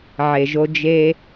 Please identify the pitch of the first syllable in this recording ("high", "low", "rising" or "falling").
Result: low